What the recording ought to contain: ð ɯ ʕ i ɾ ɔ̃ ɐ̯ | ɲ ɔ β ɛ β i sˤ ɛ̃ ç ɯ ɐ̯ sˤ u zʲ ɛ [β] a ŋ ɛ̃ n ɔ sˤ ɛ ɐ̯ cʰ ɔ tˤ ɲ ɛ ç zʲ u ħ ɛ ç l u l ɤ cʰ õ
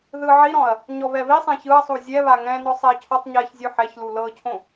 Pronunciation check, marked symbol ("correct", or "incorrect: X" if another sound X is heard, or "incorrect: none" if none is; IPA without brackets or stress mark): correct